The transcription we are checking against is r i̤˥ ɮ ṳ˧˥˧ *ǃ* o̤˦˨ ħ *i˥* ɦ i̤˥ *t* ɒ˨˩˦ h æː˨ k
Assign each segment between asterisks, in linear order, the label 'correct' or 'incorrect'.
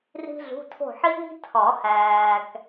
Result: incorrect, correct, incorrect

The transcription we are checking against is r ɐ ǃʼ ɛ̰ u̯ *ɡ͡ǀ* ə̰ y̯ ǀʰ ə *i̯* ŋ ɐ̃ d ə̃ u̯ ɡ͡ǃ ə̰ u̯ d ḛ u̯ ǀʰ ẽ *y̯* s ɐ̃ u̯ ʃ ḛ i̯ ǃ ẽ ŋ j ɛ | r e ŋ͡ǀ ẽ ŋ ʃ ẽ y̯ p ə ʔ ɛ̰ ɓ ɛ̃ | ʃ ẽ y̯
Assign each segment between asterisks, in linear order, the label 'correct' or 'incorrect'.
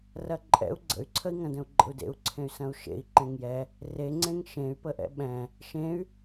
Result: correct, correct, correct

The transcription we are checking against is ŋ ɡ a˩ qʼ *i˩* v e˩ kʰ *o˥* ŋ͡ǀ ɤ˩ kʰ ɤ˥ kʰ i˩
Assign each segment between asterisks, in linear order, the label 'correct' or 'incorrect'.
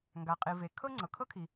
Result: correct, incorrect

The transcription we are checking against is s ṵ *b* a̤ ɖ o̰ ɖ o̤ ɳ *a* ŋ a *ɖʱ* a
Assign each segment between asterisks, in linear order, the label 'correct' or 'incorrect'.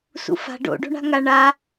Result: incorrect, incorrect, incorrect

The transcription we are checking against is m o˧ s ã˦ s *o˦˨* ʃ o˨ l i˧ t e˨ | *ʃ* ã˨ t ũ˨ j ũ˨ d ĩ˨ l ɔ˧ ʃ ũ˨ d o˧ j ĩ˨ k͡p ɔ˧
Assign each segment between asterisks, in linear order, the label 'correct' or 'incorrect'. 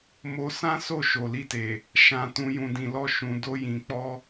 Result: correct, correct

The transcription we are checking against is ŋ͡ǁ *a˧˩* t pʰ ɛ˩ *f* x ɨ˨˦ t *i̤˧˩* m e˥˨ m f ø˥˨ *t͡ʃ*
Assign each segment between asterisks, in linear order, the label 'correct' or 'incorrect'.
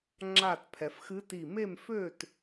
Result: correct, correct, incorrect, incorrect

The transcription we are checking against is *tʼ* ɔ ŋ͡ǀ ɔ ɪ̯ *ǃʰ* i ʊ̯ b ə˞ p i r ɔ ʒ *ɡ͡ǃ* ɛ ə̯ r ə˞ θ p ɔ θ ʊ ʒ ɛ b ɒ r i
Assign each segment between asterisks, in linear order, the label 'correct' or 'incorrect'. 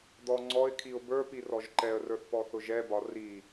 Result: incorrect, incorrect, incorrect

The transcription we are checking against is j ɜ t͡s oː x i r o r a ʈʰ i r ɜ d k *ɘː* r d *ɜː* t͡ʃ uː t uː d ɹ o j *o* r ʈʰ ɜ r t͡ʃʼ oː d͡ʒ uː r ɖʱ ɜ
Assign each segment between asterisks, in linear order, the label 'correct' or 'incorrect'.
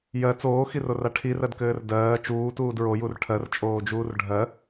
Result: correct, correct, incorrect

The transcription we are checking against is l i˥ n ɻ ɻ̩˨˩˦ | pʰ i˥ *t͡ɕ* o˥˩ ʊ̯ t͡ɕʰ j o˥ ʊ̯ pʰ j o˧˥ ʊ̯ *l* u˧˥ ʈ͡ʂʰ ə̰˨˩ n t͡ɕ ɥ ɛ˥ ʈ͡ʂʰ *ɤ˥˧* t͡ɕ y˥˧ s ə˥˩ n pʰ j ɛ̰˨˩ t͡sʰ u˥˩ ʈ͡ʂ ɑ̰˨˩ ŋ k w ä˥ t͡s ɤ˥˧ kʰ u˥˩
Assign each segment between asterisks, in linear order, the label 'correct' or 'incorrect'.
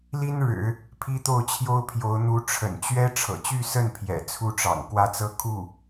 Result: incorrect, incorrect, incorrect

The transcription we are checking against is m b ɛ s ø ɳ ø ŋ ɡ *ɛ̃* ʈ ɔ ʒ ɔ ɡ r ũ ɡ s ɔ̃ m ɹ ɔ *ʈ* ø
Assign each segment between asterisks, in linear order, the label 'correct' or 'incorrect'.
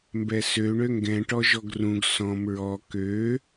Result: correct, incorrect

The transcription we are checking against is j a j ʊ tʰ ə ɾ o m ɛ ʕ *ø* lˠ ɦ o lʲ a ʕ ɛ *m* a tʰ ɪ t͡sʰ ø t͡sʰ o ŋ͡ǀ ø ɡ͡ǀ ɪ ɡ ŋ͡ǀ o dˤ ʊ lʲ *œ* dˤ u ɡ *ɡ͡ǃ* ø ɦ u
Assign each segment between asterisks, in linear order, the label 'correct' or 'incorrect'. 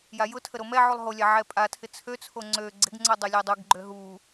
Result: incorrect, incorrect, correct, correct

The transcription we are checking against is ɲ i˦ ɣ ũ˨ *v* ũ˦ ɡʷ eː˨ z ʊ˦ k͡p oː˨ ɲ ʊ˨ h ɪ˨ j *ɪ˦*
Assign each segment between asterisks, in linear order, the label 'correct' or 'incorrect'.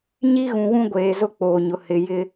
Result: incorrect, correct

